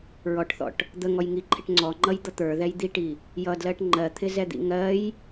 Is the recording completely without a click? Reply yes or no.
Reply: no